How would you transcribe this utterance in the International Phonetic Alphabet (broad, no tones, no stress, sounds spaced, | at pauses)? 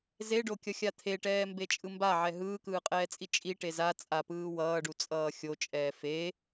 z e ɖ o kʲ ʌ xʲ a t̪ʰ e ʈ ɛː m b e t͡ʃʼ ɯ m b a ʕ ɛ ɦ ɯː k ɯː qʼ ɛː t͡sʼ i t͡ʃʼ i ʈ e z a t͡sʼ a p ɯː w ʌː ɖ u t͡sʼ ʌː xʲ o t͡ʃʼ ɛː f e